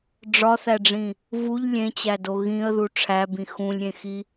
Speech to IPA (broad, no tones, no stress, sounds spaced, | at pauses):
ɖ͡ʐ ɒ θ æ ɖ͡ʐ ĩ | v u ʎ lʲ ẽ t͡ɕ æ d o ɣ ĩ ə̯ ð u ʈ͡ʂʰ æ b ĩ x ũ lʲ ɾʲ ẽ x i